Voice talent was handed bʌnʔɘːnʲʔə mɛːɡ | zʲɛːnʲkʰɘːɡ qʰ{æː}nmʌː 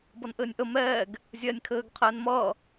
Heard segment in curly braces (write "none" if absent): ɛː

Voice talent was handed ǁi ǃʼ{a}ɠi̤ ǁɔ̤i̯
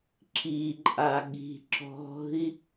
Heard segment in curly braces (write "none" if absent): a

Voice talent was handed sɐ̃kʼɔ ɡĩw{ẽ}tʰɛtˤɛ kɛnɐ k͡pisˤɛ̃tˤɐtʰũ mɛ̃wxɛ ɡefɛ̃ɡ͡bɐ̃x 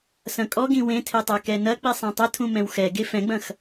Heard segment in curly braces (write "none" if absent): ẽ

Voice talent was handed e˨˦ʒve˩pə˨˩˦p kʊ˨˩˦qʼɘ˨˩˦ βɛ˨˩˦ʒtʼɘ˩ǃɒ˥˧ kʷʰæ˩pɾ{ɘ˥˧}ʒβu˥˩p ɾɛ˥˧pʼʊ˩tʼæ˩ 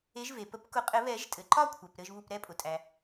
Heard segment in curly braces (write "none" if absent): ɘ˥˧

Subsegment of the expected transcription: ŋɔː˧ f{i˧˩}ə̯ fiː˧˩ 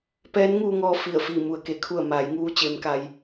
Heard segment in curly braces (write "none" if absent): i˧˩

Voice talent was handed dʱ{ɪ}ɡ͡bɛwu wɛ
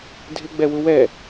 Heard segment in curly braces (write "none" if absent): ɪ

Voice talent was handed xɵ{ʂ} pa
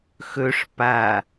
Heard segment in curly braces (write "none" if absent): ʂ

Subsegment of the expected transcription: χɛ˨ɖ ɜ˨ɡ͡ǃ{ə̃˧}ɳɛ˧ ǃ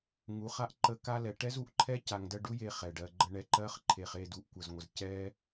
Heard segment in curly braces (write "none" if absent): ə˧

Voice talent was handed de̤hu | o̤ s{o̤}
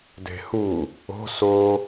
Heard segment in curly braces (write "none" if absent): o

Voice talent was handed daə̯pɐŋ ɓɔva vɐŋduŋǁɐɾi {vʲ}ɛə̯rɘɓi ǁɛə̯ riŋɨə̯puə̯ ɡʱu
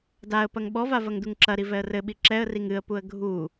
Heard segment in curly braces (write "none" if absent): v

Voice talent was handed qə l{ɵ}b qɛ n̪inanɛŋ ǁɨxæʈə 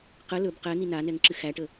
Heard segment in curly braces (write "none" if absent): ɵ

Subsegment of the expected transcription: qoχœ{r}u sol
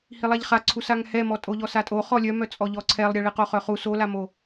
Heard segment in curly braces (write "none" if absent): χ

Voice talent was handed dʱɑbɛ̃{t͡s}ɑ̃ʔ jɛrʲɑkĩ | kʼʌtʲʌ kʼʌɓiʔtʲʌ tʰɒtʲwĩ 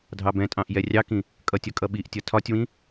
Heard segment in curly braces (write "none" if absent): tʼ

